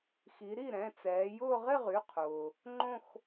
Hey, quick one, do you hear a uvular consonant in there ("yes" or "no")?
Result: yes